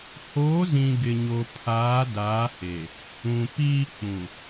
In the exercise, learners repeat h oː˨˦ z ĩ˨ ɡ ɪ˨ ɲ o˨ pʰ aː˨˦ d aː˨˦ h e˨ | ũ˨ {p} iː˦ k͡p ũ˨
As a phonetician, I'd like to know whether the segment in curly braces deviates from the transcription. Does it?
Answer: no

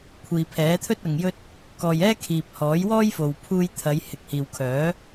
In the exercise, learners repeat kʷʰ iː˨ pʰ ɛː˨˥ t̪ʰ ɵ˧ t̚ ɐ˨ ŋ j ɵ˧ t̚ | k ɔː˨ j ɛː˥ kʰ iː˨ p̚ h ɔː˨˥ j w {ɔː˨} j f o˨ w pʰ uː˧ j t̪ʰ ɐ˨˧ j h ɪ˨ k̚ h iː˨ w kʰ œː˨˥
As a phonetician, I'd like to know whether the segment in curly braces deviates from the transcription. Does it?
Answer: yes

